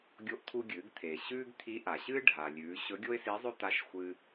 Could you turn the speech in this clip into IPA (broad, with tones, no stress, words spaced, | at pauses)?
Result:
ɡʲo˧ʔt̪ʰu˧ɡʲɨː˩˧ɡt̪ʰeː˩ ɕʉː˥ɡ t̪ʰi˧˥ʔa˩ ɕɨː˥ ɖʱa˩lʲʉː˩˧ ɕɵ˧˥ɡʲo˥ɪ̯si˧˥zˤɵ˥ t̪a˧˥ʃxʷɨː˧